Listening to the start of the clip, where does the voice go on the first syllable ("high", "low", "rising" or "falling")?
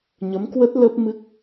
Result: rising